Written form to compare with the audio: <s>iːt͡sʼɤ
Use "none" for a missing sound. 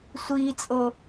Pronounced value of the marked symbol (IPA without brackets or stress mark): sʷ